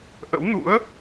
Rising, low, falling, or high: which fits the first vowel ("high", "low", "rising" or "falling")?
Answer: rising